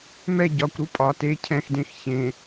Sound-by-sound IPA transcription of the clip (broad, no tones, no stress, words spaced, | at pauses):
mɛ ɟɒkʷɾu pʼɒ te cʰɛ̃xdẽx çẽ